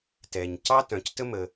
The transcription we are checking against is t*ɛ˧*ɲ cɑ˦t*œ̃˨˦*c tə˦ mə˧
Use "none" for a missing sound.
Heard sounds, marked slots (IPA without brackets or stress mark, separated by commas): ɛ˨, œ̃˨˦